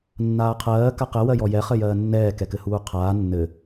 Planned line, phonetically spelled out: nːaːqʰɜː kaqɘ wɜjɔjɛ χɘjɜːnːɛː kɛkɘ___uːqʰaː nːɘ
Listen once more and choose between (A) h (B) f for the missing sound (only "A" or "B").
A